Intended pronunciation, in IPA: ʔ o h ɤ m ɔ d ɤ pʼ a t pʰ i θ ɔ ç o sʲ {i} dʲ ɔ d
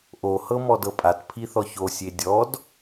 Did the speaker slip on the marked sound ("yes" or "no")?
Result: yes